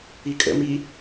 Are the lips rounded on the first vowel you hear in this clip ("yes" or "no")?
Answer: no